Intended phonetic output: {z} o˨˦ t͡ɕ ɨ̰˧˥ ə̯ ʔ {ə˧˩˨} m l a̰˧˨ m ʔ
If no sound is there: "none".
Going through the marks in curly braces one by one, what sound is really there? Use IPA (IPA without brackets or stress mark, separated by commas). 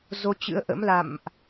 z, ə̰˧˥